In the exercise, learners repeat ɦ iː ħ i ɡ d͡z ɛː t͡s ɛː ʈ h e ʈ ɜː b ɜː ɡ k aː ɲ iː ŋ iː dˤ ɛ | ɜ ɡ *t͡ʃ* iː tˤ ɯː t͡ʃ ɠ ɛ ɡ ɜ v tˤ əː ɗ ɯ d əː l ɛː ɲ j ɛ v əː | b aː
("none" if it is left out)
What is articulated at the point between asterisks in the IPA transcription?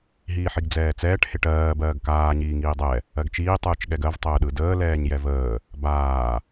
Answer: t͡ʃ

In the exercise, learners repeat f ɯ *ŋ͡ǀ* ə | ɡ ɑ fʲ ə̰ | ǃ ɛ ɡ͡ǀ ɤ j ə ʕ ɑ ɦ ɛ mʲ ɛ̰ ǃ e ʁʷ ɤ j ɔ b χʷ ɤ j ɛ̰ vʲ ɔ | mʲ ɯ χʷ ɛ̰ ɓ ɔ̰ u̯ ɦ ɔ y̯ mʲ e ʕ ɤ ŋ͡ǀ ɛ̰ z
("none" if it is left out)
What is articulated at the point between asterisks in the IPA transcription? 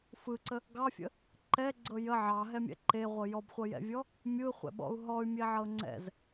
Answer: ǀ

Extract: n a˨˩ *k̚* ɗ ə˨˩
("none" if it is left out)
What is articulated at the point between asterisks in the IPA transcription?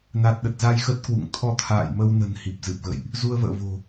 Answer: t̚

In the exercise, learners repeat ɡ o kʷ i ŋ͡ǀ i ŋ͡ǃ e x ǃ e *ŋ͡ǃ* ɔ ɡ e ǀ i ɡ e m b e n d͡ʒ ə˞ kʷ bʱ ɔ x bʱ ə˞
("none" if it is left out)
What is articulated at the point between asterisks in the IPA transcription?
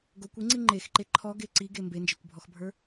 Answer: ǃʰ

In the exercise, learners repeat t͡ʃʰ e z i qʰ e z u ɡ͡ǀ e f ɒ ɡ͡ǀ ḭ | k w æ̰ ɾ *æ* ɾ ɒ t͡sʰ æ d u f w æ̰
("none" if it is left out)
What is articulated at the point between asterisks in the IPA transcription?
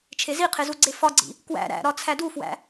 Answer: æ̰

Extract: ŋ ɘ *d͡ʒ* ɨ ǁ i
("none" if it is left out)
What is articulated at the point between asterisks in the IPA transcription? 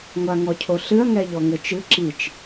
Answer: t͡ʃ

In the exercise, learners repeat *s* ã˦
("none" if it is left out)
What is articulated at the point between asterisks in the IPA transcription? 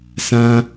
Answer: s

